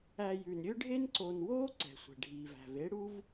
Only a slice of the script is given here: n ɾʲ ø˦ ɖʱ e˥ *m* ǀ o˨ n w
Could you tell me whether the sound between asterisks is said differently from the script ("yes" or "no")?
yes